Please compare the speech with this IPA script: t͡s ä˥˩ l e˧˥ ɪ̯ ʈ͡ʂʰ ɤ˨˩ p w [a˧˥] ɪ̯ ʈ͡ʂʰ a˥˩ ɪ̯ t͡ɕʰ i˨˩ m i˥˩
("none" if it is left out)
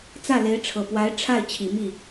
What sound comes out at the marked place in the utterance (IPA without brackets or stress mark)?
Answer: a˧˥